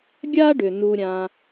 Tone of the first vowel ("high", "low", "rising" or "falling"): high